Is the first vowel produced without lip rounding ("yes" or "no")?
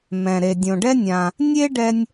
yes